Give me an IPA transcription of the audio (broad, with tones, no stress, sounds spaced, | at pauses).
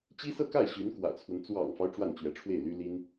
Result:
t͡ɕ i˥ s ɤ˥˧ k a˥˩ ɪ̯ ɕ y˧˥ n k w ä̰˨˩ t͡sʰ w ə˦ n t͡s w ɑ̰˨˩ ŋ f ɑ˦ ʊ̯ ʈ͡ʂ w a˥˩ n t͡ɕ ɥ ɛ˧˥ ʈ͡ʂʰ w e˥˩ ɪ̯ l y˥ l i˥ n